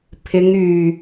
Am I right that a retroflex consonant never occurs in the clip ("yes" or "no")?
yes